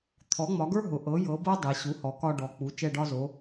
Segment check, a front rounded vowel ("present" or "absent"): absent